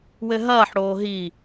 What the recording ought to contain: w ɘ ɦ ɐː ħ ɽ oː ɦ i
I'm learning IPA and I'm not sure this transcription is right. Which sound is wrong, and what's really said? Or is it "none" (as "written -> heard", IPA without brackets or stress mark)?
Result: none